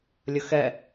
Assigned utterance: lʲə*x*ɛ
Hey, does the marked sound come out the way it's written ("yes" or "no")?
yes